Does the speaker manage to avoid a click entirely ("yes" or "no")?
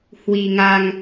yes